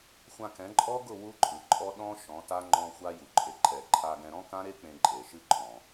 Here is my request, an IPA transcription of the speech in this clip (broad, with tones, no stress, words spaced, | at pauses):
xʷã˧kɛ̃˨˦ ǃʼɔ˦ɡʊ˦˨ wu˦ǃʼɯ˨ǃʼɔ˦ ɗɔ̃˦ ʃɔ̃˨˦ta˦ ŋ͡ǃɔ̃˧ xʷa˦ju˨ǃʼe˨ ǃʰɛ˨ǃʰa˧ɡɛ̃˧ ɾɔ̃˦kã˦ɾe˦ k͡pẽ˧ǃʼe˨ʃɨ˦ ǃʰɔ̃˨